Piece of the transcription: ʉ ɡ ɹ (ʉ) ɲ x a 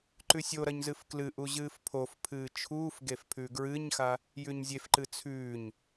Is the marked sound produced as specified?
no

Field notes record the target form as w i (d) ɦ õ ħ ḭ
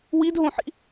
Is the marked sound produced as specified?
yes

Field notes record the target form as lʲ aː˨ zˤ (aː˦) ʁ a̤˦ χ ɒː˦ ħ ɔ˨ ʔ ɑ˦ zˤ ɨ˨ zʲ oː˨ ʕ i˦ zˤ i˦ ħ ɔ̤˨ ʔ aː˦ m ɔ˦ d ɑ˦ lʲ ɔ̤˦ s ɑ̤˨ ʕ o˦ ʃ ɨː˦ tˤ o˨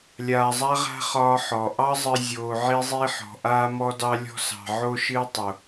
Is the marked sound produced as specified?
no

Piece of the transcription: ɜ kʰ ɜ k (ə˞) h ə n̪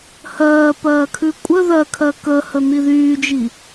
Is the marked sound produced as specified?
no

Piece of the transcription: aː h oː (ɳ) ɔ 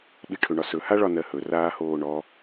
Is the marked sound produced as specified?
yes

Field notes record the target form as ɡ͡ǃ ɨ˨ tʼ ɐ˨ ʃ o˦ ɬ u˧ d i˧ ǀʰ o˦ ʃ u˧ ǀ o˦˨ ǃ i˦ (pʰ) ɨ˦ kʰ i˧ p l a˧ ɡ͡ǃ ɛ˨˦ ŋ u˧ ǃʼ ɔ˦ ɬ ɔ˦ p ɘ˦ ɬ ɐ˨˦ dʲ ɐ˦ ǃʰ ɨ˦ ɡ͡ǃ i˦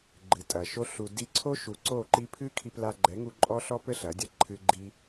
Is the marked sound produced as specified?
yes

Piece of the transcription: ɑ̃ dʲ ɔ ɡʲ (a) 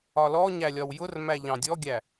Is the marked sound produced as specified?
no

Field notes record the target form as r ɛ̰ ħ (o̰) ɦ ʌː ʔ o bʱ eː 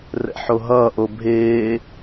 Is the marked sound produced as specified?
no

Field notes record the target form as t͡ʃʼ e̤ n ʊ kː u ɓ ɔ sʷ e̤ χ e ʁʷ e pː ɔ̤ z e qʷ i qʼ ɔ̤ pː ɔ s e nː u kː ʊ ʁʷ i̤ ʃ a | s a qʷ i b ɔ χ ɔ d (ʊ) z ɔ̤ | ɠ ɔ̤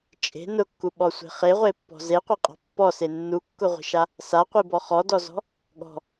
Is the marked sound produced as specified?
no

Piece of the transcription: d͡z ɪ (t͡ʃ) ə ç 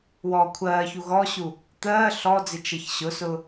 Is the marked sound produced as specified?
yes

